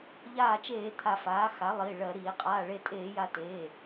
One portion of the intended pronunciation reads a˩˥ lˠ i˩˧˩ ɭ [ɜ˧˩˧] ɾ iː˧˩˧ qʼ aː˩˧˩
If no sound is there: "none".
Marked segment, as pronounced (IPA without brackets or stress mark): ɜ˧˩˧